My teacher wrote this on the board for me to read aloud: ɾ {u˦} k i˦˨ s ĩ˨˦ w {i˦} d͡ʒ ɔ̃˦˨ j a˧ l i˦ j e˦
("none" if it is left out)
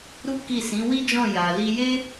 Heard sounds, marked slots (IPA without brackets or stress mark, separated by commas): u˦, i˦